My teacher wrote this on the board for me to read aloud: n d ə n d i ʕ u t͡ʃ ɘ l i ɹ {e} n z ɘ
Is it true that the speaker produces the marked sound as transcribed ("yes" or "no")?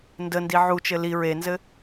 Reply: yes